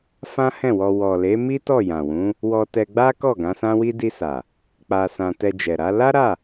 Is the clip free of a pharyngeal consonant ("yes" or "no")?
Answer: yes